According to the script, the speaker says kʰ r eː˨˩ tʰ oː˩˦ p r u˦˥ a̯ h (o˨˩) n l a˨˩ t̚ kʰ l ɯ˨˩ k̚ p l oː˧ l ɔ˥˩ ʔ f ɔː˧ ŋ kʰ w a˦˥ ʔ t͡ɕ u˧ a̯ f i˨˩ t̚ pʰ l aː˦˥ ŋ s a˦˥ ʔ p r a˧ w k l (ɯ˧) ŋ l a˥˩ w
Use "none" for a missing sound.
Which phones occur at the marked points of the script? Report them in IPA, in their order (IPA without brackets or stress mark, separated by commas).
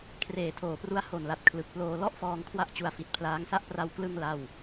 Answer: o˨˩, ɯ˧